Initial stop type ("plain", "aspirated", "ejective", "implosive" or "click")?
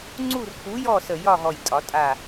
click